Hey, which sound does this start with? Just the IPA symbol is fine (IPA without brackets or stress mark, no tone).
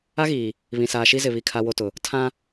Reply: a